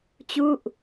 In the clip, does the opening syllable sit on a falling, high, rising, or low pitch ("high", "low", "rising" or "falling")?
falling